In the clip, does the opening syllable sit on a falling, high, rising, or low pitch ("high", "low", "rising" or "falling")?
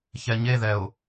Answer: low